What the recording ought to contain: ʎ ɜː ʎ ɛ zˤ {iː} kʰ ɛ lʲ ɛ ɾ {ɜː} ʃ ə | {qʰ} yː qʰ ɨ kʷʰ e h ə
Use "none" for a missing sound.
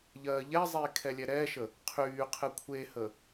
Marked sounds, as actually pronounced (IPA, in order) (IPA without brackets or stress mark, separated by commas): iː, ɛː, qʰ